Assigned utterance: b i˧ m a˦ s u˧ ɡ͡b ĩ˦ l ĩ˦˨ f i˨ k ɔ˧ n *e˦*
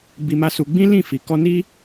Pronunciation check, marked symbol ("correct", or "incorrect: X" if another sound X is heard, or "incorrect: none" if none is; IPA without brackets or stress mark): incorrect: i˦